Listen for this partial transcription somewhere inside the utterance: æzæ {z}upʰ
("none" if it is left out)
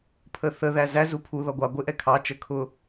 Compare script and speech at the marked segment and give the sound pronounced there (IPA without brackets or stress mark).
z